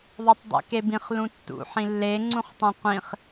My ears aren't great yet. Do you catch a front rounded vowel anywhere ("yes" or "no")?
no